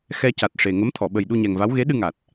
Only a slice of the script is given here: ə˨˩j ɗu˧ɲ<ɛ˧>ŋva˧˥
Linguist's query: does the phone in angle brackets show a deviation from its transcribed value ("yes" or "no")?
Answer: yes